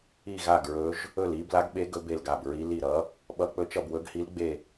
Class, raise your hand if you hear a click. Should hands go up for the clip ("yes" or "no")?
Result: no